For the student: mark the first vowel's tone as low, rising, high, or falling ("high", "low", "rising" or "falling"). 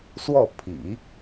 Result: falling